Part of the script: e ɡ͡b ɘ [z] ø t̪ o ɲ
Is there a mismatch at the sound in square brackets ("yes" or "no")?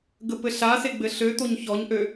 yes